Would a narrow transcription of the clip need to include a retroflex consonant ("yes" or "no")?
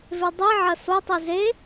no